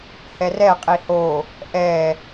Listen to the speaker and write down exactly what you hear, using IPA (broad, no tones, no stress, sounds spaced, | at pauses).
h ɛ r ɛ qʼ i h o | ʔ ɛ